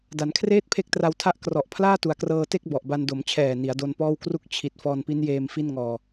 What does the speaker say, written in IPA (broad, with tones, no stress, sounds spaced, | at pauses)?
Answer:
d a˩˦ n kʰ r eː˥˩ t̚ pʰ e˦˥ k̚ t r a˧ w tʰ a˦˥ ʔ k r ɔ˨˩ ʔ pʰ l aː˥˩ t u˨˩ a̯ k r ɤː˧ t e˥˩ k̚ b ɔ˨˩ ʔ b a˧ n d o˩˦ m t͡ɕʰ ɛː˨˩ n i˩˦ a̯ d o˧ n p ɔː˥˩ w k r u˦˥ k̚ t͡ɕʰ i˨˩ t̚ f ɔː˧ n p i˦˥ n j eː˧ m f i˥˩ n ŋ ɔː˧